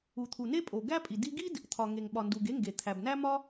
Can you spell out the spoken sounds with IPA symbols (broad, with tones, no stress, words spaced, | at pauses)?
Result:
u˩t̪ʰu˩ne˥ pʼo˩ ɡæ˥pʼi˩ di˥ ɡi˥d | t̪ʰɒ˩ ŋe˩ŋɓɒ˩ndu˩ɡ e˥ŋɡe˩ t̪ʰæ˩bnæ˥mɒ˥